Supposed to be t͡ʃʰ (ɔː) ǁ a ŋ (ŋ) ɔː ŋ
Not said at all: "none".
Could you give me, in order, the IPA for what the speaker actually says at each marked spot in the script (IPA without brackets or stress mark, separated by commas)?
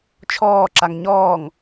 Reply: ɔː, ɲ